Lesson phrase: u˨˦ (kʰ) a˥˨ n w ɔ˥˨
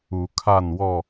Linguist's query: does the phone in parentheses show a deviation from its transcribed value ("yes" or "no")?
no